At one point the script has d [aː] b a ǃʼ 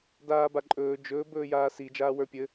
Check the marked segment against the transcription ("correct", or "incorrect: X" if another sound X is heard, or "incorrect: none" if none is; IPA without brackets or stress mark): correct